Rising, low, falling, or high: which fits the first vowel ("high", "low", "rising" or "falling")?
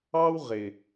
high